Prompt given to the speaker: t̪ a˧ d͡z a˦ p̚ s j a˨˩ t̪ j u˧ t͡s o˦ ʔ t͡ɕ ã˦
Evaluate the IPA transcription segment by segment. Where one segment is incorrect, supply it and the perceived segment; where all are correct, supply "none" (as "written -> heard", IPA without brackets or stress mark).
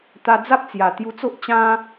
s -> t͡s